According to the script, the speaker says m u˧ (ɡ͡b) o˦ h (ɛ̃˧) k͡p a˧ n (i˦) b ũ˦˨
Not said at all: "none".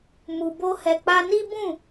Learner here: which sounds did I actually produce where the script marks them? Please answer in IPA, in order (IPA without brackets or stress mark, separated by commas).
b, ɛ˧, i˦